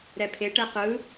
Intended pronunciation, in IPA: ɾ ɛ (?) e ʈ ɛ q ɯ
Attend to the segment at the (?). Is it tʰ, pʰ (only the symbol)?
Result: pʰ